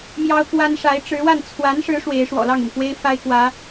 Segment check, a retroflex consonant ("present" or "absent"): present